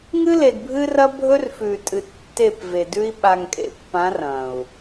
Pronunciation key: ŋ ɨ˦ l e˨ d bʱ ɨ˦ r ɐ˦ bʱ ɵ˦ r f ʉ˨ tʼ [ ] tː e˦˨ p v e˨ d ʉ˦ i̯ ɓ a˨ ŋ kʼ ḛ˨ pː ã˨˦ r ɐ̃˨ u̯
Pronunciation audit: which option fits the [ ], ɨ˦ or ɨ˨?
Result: ɨ˨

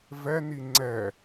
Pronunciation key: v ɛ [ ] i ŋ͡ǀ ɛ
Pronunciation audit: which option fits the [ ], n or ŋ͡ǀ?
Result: n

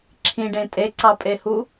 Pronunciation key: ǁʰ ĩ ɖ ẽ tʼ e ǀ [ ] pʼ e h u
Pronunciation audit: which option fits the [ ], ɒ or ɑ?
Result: ɑ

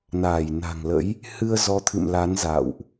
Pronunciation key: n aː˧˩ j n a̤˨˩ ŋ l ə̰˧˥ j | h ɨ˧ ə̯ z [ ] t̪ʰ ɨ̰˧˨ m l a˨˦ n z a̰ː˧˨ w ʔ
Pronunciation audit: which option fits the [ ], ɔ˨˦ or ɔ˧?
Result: ɔ˨˦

